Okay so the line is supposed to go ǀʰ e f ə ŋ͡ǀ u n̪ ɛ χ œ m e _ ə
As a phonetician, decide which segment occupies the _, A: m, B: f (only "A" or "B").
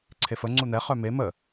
A